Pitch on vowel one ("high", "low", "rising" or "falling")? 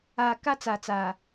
low